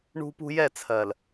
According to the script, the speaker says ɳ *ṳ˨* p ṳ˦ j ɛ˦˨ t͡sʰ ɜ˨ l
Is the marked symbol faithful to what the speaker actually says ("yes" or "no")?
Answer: no